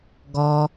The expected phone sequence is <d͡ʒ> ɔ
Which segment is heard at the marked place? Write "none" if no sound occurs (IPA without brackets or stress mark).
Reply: ɡ